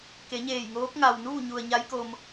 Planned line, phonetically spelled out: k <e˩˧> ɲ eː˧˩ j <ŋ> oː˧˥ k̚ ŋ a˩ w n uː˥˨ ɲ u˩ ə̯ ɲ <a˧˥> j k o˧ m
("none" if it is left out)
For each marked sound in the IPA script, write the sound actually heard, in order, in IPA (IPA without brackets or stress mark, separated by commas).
e˩˧, ŋ, a˧˥